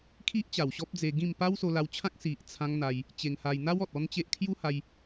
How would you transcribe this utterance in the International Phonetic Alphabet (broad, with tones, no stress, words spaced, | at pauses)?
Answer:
kʰi˦ʔt͡ɕa˨˩w ɕɔ˦p̚d͡ze˧ɡĩ˥˧m pa˦wso˧la˧wt͡ɕʰã˦k̚ si˨ʔ t͡sʰã˧ŋ n̪a˧j | t͡ɕe˧ŋha˧j n̪a˦wɔ˨t̚ ɔ˦nt͡ɕe˦ʔ kʰju˦ha˧j